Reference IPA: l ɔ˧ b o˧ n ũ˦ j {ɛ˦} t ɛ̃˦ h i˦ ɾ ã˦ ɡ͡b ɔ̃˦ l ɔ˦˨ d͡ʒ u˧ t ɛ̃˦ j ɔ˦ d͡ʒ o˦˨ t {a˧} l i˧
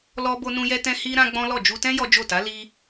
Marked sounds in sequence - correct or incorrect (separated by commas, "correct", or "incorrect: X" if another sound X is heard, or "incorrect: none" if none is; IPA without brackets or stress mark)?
correct, incorrect: a˨˦